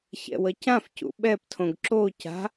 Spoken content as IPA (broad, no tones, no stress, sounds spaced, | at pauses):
ç ɛ̰ w ʌ c ã f c ṵ ɓ ɛ p tʰ õ ɡ ǁ o c a̤